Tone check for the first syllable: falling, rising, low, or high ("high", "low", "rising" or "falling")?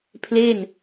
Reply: falling